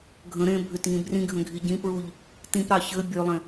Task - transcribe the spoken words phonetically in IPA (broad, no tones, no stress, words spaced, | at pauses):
ɡʱə̃ ɾẽ bʱʏtŋĩ brĩɡʱə̃ ɡʱiɟĩpɹuʎ | tĩpɾɑ çɘ bʲølˠẽ